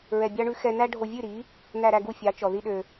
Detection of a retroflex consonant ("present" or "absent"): present